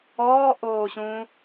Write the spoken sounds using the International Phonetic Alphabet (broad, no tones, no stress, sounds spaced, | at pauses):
ɔː ʔ oː ɕ ũ